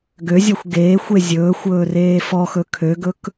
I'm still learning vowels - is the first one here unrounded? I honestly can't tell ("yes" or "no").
no